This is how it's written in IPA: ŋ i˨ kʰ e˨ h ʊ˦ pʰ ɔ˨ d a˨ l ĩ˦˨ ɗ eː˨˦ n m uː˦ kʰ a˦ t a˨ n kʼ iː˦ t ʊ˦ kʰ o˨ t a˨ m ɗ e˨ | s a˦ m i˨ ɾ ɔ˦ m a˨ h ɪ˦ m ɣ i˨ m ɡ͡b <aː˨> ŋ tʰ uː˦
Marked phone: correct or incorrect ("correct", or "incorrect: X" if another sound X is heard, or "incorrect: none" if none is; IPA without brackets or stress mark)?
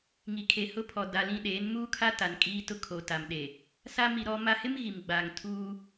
correct